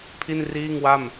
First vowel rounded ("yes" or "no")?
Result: no